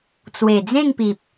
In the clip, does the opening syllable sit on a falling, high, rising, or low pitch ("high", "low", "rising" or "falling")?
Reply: low